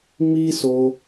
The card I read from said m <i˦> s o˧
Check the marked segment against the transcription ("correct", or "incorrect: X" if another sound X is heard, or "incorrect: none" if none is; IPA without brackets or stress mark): correct